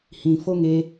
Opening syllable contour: low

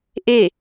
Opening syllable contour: falling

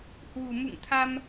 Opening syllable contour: low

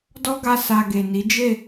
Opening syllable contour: high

